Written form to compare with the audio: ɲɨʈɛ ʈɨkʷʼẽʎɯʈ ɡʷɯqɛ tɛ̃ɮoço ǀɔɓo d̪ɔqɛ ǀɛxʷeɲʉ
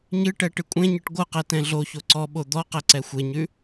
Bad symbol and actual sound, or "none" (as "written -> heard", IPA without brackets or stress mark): ʎ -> ɲ